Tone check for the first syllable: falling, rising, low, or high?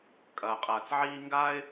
low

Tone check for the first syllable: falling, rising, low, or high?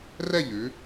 falling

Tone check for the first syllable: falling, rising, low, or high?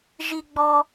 high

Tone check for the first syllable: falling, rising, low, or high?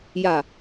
low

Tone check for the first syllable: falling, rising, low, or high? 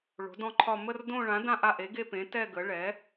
rising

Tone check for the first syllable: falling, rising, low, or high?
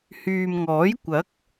low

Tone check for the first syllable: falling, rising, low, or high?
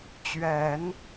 low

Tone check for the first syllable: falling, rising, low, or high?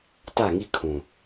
falling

